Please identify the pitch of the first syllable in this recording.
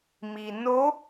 low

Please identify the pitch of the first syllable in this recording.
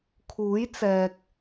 rising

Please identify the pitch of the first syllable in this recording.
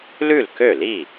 falling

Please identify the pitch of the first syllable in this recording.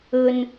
low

